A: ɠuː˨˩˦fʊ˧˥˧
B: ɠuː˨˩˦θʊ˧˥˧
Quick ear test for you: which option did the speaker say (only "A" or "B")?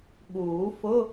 A